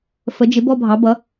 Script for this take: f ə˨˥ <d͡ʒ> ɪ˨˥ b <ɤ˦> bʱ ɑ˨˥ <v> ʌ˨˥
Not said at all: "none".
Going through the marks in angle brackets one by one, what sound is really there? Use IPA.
d͡ʒ, ɔ˦, b

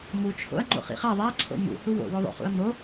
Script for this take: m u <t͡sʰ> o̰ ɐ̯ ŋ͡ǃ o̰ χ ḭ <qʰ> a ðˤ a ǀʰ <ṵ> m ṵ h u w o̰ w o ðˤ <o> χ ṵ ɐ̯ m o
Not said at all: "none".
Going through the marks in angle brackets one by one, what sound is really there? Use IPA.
t͡ʃʰ, χ, o̰, o̰

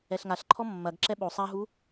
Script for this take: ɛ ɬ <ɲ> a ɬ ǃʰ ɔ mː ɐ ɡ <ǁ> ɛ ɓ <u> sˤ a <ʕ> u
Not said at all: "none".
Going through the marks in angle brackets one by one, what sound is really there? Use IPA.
ŋ, ǁ, o, ɦ

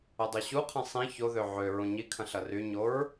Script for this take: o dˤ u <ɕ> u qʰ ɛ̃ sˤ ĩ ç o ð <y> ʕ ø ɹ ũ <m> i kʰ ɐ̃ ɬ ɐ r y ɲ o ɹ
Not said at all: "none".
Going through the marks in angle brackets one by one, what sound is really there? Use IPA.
ɕ, ø, ɲ

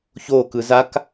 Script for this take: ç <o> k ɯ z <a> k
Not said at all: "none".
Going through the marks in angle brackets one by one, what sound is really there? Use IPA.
o, a

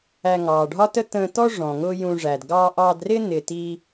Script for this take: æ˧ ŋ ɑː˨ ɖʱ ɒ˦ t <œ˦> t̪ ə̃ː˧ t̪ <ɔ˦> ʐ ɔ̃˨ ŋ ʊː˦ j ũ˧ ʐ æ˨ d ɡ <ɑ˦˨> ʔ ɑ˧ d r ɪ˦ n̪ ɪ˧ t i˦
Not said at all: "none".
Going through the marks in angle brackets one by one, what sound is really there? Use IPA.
ə˦, ɔ˦, ɑ˧

